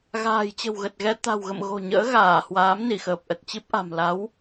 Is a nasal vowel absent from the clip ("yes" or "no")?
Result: yes